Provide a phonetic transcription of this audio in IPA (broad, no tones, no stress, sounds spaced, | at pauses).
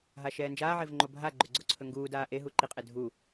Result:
ɦ a ʃ ɛː n d͡ʒ aː ʕ e v ŋ͡ǃ o bʱ a ɡ͡ǃ ɵ ɡ͡ǀ o ǀʰ ɵ ŋ ɡ uː d aː ʔ e ɦ u ǃ i qʼ e dʱ u